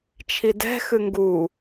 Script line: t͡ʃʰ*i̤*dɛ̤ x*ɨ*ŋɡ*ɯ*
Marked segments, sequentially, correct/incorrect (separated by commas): incorrect, correct, incorrect